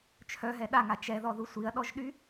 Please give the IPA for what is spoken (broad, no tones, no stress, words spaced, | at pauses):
t͡ʃʰœɦɛ ɗaŋa t͡ʃɛðɔðu sʷiɐ̯ɗɔʒɗy